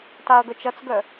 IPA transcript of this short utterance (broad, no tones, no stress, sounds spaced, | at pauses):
t a ɐ̯ ɡ œ t͡ʃ ɐ t͡s ɡ œ